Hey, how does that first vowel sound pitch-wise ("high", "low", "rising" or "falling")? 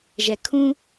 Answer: low